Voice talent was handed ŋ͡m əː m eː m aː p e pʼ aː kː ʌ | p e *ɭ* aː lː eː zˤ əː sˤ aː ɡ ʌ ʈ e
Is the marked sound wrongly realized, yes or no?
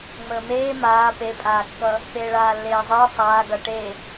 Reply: no